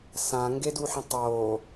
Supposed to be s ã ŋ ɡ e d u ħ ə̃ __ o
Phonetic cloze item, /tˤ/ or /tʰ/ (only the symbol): tˤ